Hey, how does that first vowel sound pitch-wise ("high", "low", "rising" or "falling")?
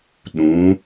rising